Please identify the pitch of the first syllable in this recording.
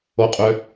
low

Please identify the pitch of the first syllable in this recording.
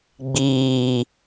low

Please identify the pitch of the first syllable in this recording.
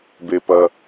low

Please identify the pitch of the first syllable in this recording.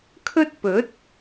high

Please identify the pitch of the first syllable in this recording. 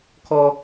high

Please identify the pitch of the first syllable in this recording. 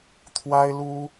high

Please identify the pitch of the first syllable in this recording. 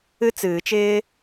high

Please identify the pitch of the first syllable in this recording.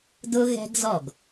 high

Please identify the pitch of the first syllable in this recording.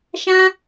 high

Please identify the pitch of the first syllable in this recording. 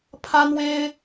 high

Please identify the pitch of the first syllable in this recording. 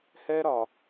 high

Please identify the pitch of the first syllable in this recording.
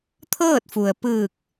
falling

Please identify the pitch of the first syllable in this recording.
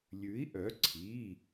rising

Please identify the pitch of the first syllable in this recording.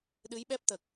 rising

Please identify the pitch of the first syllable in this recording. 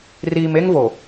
low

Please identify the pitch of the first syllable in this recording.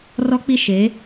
high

